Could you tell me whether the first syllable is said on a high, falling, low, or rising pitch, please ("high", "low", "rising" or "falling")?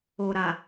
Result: low